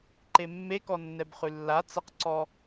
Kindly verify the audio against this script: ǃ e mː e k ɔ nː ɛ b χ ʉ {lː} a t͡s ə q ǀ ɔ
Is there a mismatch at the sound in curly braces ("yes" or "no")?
no